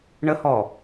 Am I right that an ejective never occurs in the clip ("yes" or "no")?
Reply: yes